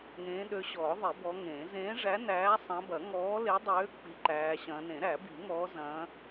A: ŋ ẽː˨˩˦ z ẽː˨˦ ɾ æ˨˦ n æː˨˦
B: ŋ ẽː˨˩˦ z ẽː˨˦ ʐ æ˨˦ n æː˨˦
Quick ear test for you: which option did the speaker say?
B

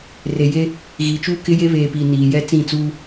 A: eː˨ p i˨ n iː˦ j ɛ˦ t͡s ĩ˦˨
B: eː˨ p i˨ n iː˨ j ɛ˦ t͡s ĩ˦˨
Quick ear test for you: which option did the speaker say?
B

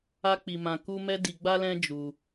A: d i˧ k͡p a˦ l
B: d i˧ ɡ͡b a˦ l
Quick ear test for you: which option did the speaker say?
B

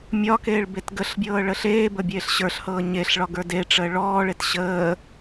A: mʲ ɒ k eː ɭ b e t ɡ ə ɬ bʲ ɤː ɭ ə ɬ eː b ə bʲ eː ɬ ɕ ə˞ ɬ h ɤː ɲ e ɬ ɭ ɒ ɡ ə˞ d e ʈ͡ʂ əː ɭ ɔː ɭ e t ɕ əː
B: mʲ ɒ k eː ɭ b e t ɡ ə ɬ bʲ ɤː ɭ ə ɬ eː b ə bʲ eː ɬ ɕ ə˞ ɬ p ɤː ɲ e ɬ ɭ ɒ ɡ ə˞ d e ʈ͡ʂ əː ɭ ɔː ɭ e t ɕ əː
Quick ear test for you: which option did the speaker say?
A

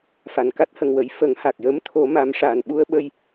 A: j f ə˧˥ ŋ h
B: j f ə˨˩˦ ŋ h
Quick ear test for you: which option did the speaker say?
B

